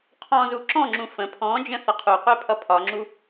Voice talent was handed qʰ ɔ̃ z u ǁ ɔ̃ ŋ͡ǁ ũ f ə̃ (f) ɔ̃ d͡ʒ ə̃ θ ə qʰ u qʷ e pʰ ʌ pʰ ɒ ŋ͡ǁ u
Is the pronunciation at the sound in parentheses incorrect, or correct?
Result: incorrect: pʰ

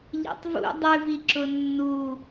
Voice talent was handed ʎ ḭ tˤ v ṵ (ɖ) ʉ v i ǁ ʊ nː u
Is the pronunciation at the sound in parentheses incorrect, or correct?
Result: incorrect: dˤ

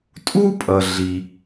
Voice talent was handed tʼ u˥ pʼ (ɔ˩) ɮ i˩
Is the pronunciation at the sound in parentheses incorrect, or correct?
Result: incorrect: ʌ˩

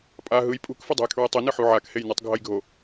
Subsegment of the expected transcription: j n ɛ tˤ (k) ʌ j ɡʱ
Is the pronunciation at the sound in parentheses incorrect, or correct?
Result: incorrect: ɡʱ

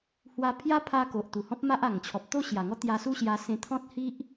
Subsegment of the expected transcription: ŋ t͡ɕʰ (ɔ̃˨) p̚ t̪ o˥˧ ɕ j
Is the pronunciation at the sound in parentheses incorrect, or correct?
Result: incorrect: ɔ˨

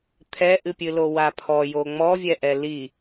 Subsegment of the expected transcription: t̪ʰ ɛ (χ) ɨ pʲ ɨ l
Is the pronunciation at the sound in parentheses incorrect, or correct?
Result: incorrect: ʔ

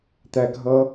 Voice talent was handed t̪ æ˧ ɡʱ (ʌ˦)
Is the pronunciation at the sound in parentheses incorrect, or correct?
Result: correct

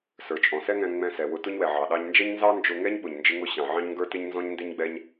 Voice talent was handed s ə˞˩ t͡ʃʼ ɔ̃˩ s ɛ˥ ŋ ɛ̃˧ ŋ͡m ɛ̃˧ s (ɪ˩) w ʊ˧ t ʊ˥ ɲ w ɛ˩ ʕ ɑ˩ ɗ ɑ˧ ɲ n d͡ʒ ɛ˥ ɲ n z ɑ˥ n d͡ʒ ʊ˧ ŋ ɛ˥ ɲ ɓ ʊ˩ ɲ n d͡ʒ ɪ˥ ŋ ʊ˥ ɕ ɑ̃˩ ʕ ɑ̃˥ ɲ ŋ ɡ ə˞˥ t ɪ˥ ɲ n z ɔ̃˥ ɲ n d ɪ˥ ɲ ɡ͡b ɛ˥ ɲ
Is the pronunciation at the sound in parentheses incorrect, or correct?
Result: incorrect: ɛ˩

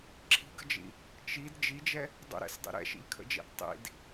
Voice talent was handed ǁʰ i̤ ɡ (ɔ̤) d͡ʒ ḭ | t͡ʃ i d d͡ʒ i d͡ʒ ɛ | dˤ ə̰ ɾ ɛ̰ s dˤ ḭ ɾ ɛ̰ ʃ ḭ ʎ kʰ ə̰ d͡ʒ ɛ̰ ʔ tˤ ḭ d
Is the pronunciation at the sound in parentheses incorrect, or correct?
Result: incorrect: ə̤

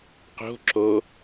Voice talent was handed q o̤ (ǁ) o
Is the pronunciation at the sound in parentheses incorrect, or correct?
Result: correct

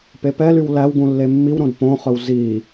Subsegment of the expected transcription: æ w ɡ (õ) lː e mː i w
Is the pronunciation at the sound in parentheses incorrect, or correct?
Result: incorrect: ũ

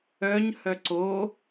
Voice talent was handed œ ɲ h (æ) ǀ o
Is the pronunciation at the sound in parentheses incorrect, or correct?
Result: incorrect: œ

